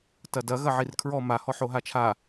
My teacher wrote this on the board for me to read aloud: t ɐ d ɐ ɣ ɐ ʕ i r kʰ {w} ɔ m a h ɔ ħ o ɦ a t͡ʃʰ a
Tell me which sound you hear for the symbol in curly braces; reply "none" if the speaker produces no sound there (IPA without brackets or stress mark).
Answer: ɹ